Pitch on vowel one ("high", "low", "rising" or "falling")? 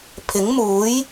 rising